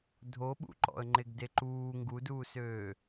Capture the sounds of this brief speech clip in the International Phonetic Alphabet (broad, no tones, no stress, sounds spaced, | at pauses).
dʱ o ɓ ṵ ǃ ɔ̰ ə̯ ŋ͡ǃ e ɡ d e ǃ uː ŋ ɡ u d uː s øː